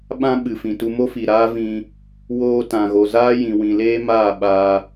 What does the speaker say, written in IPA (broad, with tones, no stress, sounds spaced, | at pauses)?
ɓ ã˧ ɓ ɨ˨ f ĩ˨ t u˧ m o˦ f i˨ ɾ aː˦ v ĩ˧ | w oː˧ t ã˨ ɣ o˨ z aː˦ j ĩ˨ w ĩ˨ l eː˦ m aː˦˨ ɓ aː˧